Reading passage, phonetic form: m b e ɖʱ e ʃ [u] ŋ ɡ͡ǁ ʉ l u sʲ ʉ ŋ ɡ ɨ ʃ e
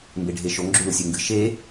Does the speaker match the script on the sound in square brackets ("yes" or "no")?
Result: no